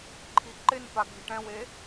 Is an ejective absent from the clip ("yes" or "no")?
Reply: yes